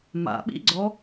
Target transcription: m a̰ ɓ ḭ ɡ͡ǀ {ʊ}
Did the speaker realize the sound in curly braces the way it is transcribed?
no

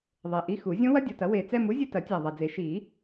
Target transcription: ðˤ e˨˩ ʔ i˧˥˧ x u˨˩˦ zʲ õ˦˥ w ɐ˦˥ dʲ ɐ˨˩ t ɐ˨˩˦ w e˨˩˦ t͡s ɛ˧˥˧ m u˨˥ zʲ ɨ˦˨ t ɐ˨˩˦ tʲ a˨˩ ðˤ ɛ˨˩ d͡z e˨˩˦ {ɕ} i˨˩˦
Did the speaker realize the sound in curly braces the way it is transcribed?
no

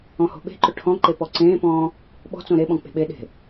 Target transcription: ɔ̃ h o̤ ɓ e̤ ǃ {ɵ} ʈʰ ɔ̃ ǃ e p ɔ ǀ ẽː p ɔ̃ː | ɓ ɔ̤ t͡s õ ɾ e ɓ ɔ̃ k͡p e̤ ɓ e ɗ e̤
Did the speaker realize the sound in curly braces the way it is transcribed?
yes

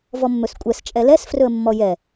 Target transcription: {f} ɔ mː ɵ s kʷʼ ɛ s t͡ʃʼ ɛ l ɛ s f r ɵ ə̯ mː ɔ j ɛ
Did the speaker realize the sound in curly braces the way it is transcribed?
no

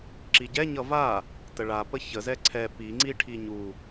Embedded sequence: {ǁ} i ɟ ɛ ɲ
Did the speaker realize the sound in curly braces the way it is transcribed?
yes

